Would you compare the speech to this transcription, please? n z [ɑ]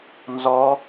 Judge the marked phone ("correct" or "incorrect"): incorrect